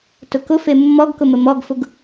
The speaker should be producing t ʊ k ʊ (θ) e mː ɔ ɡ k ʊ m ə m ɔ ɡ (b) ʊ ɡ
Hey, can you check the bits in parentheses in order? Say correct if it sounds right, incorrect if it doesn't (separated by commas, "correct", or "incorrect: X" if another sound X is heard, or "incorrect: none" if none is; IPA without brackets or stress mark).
incorrect: f, incorrect: f